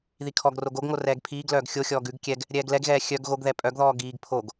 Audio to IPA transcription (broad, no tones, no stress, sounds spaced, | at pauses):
ð i kʰ ɔ ɡ r o ɡ o ɡ ŋ o r ɛː ɡ pʰ iː ɡ l œː ɡ xʲ o xʲ ɔː ɡ ʉ ɡ kʲ ɛ ɡ | ɾʲ ɛː ɡ l ɛ ɡ ɣ ɛː xʲ œ ɡ ɣ o ɡ ð ɛ pʼ œ ɡ ð ɔː ɡ iː ɡ pʰ o ɡ